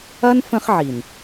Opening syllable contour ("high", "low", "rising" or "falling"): high